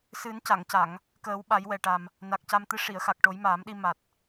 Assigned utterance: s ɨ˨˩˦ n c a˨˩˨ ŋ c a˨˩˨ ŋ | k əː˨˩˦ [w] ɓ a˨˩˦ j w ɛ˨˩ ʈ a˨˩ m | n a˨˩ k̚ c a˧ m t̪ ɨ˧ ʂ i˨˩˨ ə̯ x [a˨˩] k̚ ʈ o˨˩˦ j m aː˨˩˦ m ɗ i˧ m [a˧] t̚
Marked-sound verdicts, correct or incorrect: correct, correct, incorrect: a˨˩

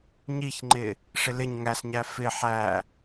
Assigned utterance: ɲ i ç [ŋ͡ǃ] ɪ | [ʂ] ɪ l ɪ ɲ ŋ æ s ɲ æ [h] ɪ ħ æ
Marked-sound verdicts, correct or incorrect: correct, correct, incorrect: f

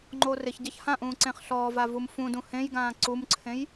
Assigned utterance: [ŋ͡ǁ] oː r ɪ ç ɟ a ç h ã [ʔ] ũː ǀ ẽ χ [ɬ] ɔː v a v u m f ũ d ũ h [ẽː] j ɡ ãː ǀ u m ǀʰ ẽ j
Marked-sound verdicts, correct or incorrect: incorrect: ŋ͡ǃ, correct, correct, incorrect: ẽ

